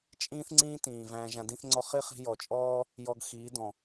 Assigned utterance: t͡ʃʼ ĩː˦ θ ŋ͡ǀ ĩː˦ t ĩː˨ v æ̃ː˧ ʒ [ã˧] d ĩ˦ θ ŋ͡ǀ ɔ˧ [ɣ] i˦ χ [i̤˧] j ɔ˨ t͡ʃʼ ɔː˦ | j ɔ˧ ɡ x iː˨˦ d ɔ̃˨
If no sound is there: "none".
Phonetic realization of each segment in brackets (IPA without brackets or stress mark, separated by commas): ã˧, χ, i̤˧